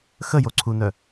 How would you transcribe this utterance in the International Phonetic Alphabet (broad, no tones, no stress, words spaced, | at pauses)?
xəjoǀʰunœ